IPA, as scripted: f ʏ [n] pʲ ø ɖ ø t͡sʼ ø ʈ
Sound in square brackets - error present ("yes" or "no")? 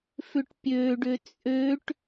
yes